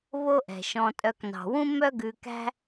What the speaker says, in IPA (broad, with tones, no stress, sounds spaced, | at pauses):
β o˦ ʔ ɛ̤˩ ʃ ɔ̃˨ tʼ œ˨ k n ɑ̤˩ w ũ˦ m œ˦ ɡ ʉ˨ k æ̤˦